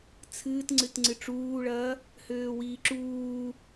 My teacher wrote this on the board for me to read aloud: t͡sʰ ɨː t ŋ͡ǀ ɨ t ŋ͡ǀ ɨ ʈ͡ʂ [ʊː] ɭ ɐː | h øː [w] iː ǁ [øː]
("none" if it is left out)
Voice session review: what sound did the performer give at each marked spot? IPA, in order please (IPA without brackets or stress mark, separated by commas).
uː, w, uː